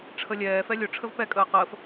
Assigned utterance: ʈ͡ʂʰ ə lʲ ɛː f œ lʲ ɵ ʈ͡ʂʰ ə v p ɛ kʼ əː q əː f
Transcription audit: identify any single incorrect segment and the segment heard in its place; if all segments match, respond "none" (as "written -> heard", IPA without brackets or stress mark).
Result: œ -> ɛ